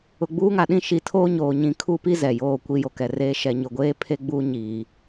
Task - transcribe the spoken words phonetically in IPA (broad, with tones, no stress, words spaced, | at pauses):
ʊ˨ɡ͡buː˦ŋa˨ɗĩ˦ ʃi˨tʰoː˦ ɲoː˨ɲĩ˨˦ kʰu˦˨pi˦ zɛ˨joː˦˨kʷi˦ jo˨kɛ˨reː˦ ʃɛ˨ɲʊ˨ɡʷeː˦ pʰe˦ɡ͡buː˦ ɲiː˨